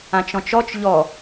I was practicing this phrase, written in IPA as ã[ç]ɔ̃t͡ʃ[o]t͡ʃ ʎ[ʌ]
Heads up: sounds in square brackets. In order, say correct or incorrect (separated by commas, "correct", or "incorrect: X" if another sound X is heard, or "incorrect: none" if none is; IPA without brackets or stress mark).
incorrect: t͡ʃ, incorrect: ɔ, incorrect: ɔ